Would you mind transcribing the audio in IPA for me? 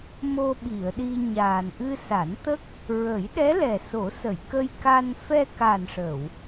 m o˧ ɓ i˨˩˨ ə̯ ɗ i˧ ɲ aː˨˩ n ʔ ɨ˧ s a˨˩˦ n t̪ ə˦˥ k̚ | ɹ ə˨˩˦ j ɗ ɛ˧˥ l ɛ˨˩ s o˨˩˦ s ə˨˩˨ j k ə˧ j k a˧ n f ɛ˧ k a˨˩ n ʂ ə˨˩˨ w

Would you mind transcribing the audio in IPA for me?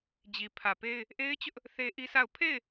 d͡ʑ i˨ pʰ ä˨ p e˦ ɪ̯ | ʔ e˦ ɪ̯ t͡ɕ ʊ˦ ʔ | θ e˦ ʔ i˦ sʰ a˦˨ ʊ̯ pʰ e˦˨ ɪ̯

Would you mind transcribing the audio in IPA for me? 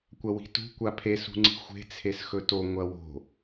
kʷ ɐ w i̤ t ṳ kʷ a pʰ e s ṳ ŋ͡ǀ i̤ xʷ e̤ t͡sʰ e s x ɵ t o ŋʷ ɐ w o̤

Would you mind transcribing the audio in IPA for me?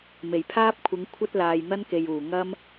m e˨˩ j pʰ aː˥ p̚ kʷʰ ɪ˨˧ ŋ kʷʰ ɐ˥ t̚ l aː˨ j n̪ ɐ˥ n k e˨ j uː˨˩ ŋ ɐ˥ m

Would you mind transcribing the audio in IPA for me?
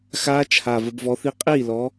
x aː˦˥ t͡ʃʰ a˨˩ v ə˩˧ b v ɔ˨˥ θ i˦˥ qʼ iː˥˩ l ɔ˨˥

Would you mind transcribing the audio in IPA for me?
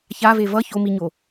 ç a v e v ʌ ç o m i ɲ o

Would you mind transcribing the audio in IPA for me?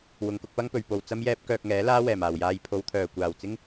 w ʊ˨ ŋ k ʊ˧ k̚ p ɐ˥ ŋ p ɵ˨ ɥ p o˨ w t͡s ɐ˥ m j ɛː˥ p̚ k œː˧ k̚ ŋ ɛː˨˥ l aː˥ w ɛː˨˩ m aː˨˩ w j aː˧ j pʰ o˨˧ w t̪ʰ œː˨˩ kʷ aː˨˩ w t͡s ɪ˥ ŋ

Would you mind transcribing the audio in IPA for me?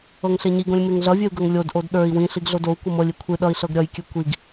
ɤ ŋ ɬ e ɲ i ɡ õ lʲ m e ŋ ɮ ʌ vʲ e u̯ ɡ ɤ ŋ lʲ o d ʔ o d ɗ ə˞ i̯ w ĩ ɬ i ɡ ɮ o d o u̯ kʷ ɤ m ɤ lʲ i kʷʰ ɨ ɗ ʌ i̯ ɬ ɤ ɡ ɾʲ ʌ j kʲ ɨ kʷ i ɡ

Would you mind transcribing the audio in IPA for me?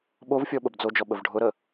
ɓ o v fʲ ɔ ɓ ə b d͡z o d͡ʒ ɔ ɓ ə v ɖʱ ʊ ɾ ə

